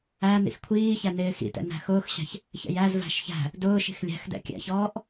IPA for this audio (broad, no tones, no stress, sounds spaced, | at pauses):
æ n ḭ x kʷʰ iː ç æ n ɪː x ḭ t ɛ̰ n æ̤ x ʊː x ɕ æ̤ ç | ç ɛ̰ j æ z v æ̤ ʃ ç æ̤ | d ʊː ʃ i̤ x lʲ æ̤ x d ɛ̰ kʲ æ̰ ç ɔː ʔ